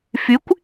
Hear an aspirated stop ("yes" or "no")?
no